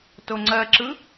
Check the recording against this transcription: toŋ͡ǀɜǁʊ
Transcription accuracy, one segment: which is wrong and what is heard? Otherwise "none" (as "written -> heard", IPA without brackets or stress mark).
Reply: ʊ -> ɯ